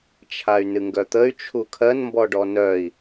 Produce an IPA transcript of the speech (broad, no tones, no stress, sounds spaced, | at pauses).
t͡ʃʰ a y̯ n ɨ ŋ ɡ œ t̪ ə y̯ t͡ʃʰ u kʰ ɜ n m b ɔ ɖ ɔ n œ i̯